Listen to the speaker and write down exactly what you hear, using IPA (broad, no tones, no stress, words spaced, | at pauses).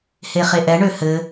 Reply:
heχeʔɛɳø hɘ